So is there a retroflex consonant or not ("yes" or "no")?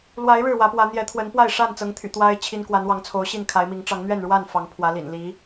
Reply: yes